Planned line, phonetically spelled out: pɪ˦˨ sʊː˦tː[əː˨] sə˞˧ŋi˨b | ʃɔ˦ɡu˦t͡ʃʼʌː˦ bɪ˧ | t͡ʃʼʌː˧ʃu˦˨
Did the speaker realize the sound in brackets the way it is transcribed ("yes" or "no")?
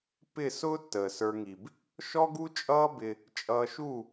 yes